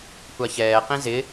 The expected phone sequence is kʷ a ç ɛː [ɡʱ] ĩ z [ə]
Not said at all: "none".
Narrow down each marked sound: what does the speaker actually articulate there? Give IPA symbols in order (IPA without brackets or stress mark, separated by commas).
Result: q, ɪ